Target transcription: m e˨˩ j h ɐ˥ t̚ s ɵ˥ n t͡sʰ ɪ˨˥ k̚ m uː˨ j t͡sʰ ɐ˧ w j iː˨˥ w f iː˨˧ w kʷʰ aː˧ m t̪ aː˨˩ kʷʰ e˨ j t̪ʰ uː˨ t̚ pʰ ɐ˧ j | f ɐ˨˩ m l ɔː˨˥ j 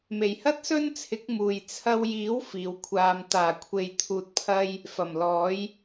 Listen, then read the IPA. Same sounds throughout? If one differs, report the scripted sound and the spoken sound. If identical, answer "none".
none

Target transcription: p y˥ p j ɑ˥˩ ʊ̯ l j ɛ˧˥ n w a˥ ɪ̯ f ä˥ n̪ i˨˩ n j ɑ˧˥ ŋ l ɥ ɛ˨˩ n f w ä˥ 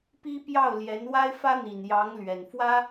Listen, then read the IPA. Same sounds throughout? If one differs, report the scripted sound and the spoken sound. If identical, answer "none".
y˥ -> i˥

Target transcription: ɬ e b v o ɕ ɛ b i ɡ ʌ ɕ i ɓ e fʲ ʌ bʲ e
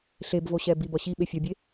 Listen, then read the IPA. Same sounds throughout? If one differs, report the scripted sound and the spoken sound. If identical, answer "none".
ɡ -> b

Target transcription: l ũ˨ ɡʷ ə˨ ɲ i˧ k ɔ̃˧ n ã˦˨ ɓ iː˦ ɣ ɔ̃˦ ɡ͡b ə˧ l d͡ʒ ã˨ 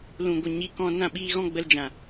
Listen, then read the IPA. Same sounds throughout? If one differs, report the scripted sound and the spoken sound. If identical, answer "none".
none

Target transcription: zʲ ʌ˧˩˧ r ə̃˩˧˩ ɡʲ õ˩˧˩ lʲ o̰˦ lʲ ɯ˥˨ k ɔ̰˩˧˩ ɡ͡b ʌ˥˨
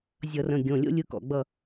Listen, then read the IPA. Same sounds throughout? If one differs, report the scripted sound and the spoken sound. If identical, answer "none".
none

